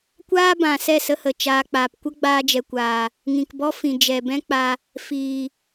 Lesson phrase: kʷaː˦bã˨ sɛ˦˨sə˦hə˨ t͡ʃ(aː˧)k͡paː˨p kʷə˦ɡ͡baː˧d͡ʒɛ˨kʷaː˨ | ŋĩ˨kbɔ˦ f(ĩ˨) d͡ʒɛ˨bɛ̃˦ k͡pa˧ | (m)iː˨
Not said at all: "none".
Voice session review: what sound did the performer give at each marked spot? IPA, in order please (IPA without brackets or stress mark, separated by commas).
aː˧, ĩ˨, f